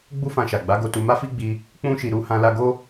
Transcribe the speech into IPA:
ɡ͡b u˦ f ã˧ ʃ a˨ ɡ͡b a˨˦ ɡ o˧ t u˧ m a˦ f i˦ ɡ͡b i˧ | k͡p ũ˦ ʃ i˧ ɾ u˧ h ã˧ l a˧ ɡ o˦

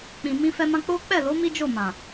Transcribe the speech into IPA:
k͡p ĩ˨ m ĩ˧ f ɛ˧ m ã˧ k͡p o˦ k͡p ɛ˦˨ l o˨˦ m i˦ d͡ʒ o˦˨ m ã˨

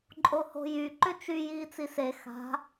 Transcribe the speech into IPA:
ǃʼ o h o̤ j y ǃ ʏ t͡ʃ y j iː t͡s i s e x a̤

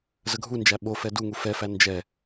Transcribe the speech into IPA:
z ə ɡʱ u n d͡ʒ æ ɓ o f ɛ d u ŋ u f ɛ f æ n d͡ʒ ɛ

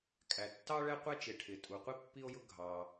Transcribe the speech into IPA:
kʼ æ˩ tː ɑ˥ ɭ ɛ˥ qʷ ɛ˥ t͡ʃ ɪ˩ ʈʰ ɪ˩ tʼ u˩ qʷ i˥ pː i˥ o̯ j ʊ˥ ɡʱ ɑ˩

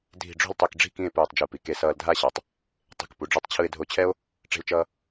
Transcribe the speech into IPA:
dʱ i̤˧˩ ɖ͡ʐ o̤˥˧ l tˤ i˧˩ k ɖ͡ʐ i̤˥˧ k ĩ˥˧ e̯ p ɯː˧˩ tˤ d͡ʒ u˧˩ p i˩˧ k e˧ s ʌː˧ l dʱ a˥˧ ɕ a˩˧ tˤ | tˤ i̤˧˩ k p u˩˧ ɖ͡ʐ u˧ tˤ t͡ɕʰ ɯ˧ e̯ dʱ o˧ t͡ɕʰ ɛ˥ o̯ | ʈ͡ʂ e̤˧ l t͡ʃ ʌː˧

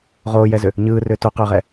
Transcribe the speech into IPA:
ʁ oː j ɛ z ʏ | ɲ ɯː r ʏː t o q ʏː ʁ ɛ

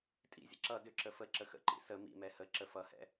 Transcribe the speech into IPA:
tʼ ḭ zʲ ə̰ ǁ ʌ d ʏ ǁ ə f ə ǁ ə x ə̰ ǃ ḭ s ə m ḭ m ɛ h ə ǁ ə f ʌ h ɛ̰

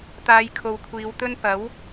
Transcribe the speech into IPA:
t̪ aː˨˧ j kʰ o˨ w kʷʰ iː˨˧ w t̪ ɵ˥ n p ɐ˨˥ w

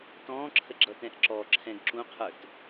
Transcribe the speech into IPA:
t ɔ̃ː ǁʰ ə ɡ͡ǁ ʌ t ɛ̃ ʔ ǁ ɔ ǁʰ ɛ̃ ɡ ǁ ũ qʰ ə˞ t

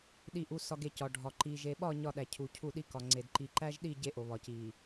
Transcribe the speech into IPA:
ɗ i˨ ʔ u˨ s ɒ˨ ɡ e˨ c ɒ˨ ɖʱ ɒ˨ ǃ i˨ ʒ e˨ ɓ ɒ˦˨ ɲ ɒ˦˨ ɗ æ˨ cʰ u˨ cʰ u˦˨ ɗ i˦ k ɒ˨ ŋ͡ǀ e˨ d ǃ i˨ ǃ æ˦ ʒ ɗ i˦˨ ɟ e˦ ʔ o˨ β ɒ˨ c i˨

